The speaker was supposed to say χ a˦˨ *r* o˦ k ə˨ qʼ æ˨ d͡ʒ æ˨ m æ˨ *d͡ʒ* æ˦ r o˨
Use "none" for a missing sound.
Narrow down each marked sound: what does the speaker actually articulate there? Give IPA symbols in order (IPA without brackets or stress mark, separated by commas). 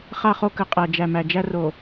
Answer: χ, d͡ʒ